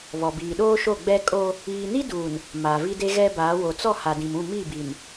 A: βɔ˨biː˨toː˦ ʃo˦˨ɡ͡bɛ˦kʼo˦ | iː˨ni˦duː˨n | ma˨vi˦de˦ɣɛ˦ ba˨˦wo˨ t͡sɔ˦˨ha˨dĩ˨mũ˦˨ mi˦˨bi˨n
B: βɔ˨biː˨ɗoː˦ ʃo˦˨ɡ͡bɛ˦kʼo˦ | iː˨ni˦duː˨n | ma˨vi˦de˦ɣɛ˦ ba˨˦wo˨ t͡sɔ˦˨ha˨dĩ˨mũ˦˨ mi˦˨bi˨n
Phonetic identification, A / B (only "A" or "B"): B